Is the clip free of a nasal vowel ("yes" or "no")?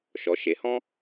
no